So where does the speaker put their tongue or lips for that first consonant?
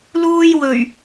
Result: tongue tip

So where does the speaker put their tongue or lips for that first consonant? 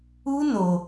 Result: tongue tip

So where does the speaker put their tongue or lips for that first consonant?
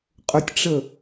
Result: uvula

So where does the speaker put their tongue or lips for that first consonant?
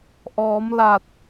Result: throat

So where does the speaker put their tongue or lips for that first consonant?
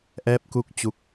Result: throat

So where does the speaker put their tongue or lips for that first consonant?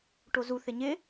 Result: retroflex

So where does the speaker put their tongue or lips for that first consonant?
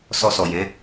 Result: tongue tip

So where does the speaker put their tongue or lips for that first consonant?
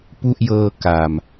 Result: lips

